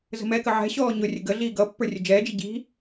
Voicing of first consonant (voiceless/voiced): voiced